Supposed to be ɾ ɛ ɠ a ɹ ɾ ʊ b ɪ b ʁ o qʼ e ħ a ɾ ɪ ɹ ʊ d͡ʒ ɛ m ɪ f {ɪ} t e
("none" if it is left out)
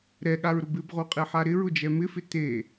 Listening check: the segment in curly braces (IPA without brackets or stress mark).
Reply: ɪ